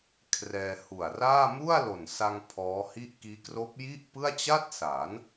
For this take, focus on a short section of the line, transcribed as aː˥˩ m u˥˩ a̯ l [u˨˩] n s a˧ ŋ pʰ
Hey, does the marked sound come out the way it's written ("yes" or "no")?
no